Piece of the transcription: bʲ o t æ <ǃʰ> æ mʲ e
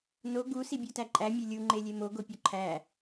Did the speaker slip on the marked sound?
yes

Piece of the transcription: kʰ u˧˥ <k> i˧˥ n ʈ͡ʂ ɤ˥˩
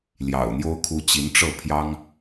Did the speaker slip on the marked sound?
yes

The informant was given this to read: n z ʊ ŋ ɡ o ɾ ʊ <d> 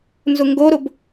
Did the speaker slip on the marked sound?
yes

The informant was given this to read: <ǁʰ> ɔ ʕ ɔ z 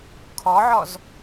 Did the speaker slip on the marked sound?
yes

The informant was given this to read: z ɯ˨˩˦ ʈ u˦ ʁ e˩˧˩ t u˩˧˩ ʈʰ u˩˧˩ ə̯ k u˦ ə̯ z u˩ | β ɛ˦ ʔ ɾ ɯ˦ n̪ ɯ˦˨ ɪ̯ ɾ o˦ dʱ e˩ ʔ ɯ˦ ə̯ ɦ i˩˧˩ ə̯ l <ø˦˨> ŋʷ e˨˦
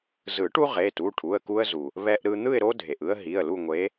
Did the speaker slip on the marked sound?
yes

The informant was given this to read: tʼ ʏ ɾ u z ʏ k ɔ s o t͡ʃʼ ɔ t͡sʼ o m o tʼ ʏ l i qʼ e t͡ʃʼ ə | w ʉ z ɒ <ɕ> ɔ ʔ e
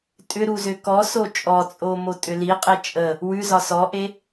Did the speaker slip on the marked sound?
yes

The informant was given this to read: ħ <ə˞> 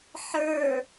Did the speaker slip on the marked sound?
no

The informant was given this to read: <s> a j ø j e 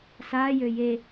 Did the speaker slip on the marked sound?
no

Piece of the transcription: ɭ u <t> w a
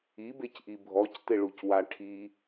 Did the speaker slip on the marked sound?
yes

